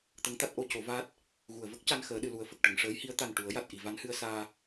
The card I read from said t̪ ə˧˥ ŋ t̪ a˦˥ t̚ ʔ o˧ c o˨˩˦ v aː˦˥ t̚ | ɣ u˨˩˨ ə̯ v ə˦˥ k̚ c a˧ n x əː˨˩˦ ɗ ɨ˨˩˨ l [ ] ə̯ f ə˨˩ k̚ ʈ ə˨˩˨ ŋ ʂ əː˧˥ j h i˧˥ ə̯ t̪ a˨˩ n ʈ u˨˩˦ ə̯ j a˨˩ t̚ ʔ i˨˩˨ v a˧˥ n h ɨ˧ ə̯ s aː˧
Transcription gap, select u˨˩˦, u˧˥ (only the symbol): u˨˩˦